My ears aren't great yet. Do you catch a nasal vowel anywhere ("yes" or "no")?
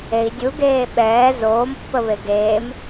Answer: no